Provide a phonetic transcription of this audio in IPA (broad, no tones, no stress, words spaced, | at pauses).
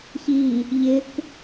çi | ʎɪk